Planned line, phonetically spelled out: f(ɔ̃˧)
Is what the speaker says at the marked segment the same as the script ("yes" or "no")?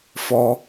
no